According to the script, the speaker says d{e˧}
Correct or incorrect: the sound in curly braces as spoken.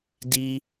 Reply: incorrect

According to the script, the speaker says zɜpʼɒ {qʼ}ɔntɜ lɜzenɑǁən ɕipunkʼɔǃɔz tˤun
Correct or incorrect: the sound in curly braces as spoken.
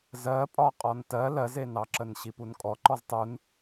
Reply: correct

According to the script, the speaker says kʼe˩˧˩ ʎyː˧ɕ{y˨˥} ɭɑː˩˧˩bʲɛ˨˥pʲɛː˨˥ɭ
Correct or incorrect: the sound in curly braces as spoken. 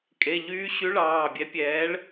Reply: correct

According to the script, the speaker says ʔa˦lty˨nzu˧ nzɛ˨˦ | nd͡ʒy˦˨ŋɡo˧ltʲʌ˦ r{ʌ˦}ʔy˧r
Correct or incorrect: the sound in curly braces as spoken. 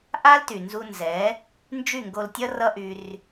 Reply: correct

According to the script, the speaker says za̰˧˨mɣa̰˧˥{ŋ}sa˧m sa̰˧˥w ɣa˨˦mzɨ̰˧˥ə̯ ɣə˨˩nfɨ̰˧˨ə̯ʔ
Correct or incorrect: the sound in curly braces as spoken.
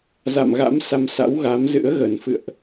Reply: incorrect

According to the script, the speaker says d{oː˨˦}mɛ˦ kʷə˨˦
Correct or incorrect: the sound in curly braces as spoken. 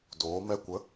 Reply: correct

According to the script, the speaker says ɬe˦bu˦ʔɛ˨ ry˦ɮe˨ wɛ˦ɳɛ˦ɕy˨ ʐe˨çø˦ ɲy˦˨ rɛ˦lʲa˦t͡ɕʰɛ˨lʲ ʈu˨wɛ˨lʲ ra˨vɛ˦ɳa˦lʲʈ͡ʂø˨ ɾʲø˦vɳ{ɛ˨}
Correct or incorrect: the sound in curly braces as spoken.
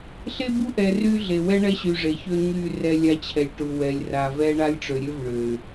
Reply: incorrect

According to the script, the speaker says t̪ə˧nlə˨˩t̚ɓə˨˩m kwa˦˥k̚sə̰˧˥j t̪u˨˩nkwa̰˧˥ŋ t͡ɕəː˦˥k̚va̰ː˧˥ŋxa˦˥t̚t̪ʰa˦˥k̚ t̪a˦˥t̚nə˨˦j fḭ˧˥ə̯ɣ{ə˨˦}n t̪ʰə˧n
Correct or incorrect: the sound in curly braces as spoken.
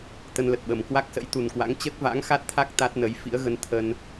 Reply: correct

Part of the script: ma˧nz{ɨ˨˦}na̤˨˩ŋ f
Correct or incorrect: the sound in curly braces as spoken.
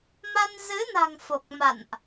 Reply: correct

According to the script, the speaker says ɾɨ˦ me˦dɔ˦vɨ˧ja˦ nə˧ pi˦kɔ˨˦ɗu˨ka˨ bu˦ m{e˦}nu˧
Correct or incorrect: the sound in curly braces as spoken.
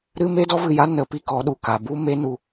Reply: correct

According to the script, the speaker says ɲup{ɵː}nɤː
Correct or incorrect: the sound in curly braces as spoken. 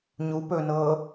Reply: correct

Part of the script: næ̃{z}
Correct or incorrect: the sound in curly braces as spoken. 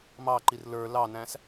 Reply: incorrect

